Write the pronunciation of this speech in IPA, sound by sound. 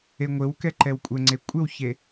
e ŋʷ ɘ w k ɛ ǃ ɛ w kʷʼ ə ŋ͡ǀ e kʷʼ ɘ w ç e

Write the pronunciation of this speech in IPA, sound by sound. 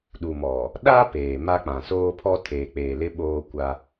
ɗ u˨ m ɔ˨ | ɗ a˦ p eː˨ m a˦ k͡p ã˨ s oː˦ pʰ ɔ˦ tʰ eː˨ k͡p eː˨ l ɪ˦ ɓ oː˦ kʷ a˦

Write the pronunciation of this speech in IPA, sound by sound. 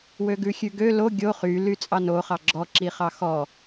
w ø ɡ ʉ xʲ ʉ ɡ ø l o ɡʲ o χ y l y t͡sʼ ɑ n o χ ɑ ɡ͡ǁ ɔ ǁ i χ ɑ x ɔ

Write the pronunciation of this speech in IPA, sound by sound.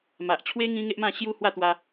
m a˨ ʔ t͡ɕʰ w e˦ ŋ ĩ˦ ŋ e˦ ʔ m ã˥˧ ɕ j u˦ h w a˥˧ t̪ w a˧

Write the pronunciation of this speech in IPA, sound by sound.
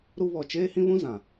ɾ u˦ β ɔ˨ t͡ʃ eː˦ h ĩ˦ β ũ˦ z ã˨

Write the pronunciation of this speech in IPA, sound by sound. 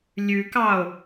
lʲ ʉ k ɑ o̯

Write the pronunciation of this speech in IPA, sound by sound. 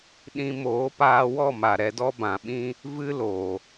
ɗ ĩ˧ m oː˨˦ p aː˧ w ɔ˦˨ m a˨ ɾ ɛ˧ d ɔ˦ b ã˨ ɓ ĩ˦ | v ɨ˦ l o˨

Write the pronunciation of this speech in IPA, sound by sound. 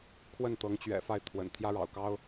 kʰ w ə˥˩ n t̪ ɤ˧˥ ŋ t͡ɕ ɥ ɛ̰˨˩ f a˥˩ ɪ̯ t̪ʰ w ə̰˨˩ n t̪ʰ j ä˥ ɻ ɑ̰˨˩ ʊ̯ k ɑ˥ ʊ̯

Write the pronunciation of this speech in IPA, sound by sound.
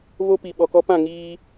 v o˦ p i˨ ɓ ɔ˨ k ɔ˦ p ã˦˨ ŋ iː˦

